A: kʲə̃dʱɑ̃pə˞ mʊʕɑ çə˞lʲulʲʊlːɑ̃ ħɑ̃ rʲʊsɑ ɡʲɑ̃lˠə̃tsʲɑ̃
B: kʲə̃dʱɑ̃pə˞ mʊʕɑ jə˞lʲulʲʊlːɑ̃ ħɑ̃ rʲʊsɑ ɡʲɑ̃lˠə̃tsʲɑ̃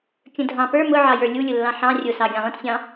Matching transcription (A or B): B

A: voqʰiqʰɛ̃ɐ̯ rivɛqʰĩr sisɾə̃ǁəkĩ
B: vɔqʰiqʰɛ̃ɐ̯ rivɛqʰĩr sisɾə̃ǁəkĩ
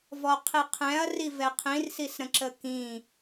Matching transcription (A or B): B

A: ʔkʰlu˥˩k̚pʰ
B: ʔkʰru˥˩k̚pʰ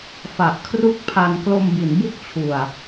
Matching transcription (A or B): B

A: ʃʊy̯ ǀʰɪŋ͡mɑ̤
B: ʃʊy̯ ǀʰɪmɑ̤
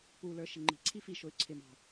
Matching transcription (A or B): B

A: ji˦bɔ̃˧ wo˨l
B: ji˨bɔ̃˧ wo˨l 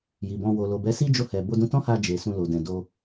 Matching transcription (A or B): B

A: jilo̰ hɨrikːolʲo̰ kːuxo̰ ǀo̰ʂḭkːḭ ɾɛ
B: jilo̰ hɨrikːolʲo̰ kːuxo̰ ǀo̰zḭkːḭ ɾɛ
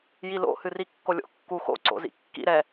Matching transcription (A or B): B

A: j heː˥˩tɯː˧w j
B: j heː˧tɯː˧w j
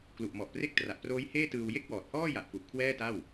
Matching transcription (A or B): A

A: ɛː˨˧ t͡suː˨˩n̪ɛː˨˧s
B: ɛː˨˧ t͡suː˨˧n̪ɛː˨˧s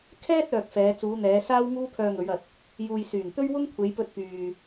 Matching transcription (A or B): B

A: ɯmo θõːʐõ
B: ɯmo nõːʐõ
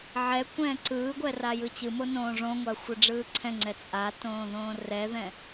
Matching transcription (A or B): B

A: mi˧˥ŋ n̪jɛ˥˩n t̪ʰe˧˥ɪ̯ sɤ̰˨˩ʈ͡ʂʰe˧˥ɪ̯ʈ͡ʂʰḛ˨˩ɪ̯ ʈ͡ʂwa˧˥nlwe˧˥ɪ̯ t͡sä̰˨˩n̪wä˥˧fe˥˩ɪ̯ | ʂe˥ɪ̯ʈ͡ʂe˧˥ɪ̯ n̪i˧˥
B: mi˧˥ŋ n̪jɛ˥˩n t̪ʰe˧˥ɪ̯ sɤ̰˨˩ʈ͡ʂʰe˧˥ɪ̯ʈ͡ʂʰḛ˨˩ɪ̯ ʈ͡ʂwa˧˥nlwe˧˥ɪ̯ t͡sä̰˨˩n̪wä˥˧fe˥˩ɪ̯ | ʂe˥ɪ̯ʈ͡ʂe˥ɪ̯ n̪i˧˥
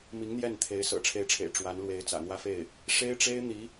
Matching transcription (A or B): B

